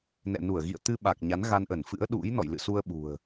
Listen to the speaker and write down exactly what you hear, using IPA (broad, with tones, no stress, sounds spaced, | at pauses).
n ɛ̰˧˨ n u˧˩ ə̯ ɣ ḭ˧˨ ə̯ t̪ ɨ˧ ɓ a˨˩ k̚ ɲ a˨˦ n ɣ a˧ n ʔ ə˧˩ n f ɨ̰˧˥ ə̯ ɗ ṵ˧˥ j n ɔ̰˧˨ j l ɨ̰˧˨ s u˧ ə̯ ɓ ṳ˨˩ ə̯